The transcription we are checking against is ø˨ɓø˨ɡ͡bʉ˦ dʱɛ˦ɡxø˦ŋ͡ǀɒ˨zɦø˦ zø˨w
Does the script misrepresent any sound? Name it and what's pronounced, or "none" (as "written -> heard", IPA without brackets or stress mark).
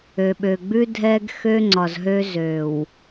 none